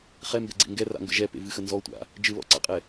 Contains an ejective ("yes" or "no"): yes